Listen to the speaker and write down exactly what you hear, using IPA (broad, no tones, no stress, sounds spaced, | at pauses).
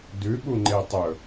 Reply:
d ʉ ɓ u ŋ͡ǃ e tˤ ɵ